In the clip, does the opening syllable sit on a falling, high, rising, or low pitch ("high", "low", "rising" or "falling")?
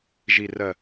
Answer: low